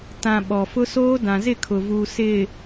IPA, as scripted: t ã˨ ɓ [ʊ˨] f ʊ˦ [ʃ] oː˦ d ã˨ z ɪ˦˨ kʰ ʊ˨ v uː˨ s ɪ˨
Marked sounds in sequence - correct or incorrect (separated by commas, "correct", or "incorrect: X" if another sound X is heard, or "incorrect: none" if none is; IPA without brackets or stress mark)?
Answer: incorrect: ɔ˨, incorrect: s